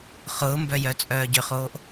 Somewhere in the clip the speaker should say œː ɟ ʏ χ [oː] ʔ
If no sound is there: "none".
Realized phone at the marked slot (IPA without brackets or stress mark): oː